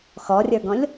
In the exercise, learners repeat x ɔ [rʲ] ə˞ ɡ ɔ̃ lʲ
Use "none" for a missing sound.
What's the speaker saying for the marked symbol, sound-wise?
rʲ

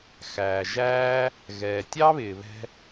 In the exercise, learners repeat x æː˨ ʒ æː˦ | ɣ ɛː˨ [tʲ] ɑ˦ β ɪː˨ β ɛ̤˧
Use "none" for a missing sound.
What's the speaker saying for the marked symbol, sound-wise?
tʲ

